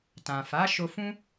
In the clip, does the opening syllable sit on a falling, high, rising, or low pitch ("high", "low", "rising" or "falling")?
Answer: low